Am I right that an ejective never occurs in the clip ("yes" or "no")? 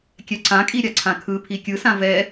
no